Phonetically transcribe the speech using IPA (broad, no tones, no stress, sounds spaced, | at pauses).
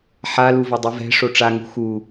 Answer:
ħ a l u v ɐ dˤ u v ɛ̤ ʂ o ʈ͡ʂ a ŋ ṳ x u